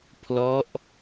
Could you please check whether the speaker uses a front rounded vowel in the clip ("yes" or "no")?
no